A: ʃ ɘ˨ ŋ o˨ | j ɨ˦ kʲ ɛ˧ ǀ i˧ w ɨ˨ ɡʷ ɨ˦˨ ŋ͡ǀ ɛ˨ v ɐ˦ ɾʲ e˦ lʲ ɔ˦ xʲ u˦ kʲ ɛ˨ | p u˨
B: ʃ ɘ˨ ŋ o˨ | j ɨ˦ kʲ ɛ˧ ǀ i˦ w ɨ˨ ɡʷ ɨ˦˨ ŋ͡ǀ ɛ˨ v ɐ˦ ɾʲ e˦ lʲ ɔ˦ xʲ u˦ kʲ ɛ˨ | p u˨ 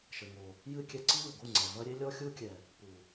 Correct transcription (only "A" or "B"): B